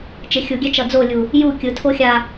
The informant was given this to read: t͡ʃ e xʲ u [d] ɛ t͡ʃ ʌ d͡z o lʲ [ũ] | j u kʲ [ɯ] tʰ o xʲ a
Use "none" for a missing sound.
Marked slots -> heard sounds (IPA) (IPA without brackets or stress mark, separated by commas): ɡʲ, u, ɯ